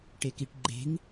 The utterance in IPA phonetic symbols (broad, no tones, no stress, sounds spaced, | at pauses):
ʈ e k i ʈ ɡ͡ǃ e̤ ŋ